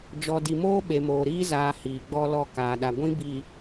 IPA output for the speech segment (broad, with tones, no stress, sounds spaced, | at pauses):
d͡ʒ ɔ˨ d i˨ m oː˦ ɓ e˨ m oː˨ ɾ iː˦ z aː˨ h iː˨ ɡ͡b ɔ˦ l ɔ˦˨ k aː˨ ɗ a˨ ɡʷ ĩ˦ b i˨